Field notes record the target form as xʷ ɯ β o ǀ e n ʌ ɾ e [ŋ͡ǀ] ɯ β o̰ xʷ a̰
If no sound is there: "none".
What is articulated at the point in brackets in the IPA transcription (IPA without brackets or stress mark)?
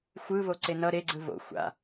ɡ͡ǀ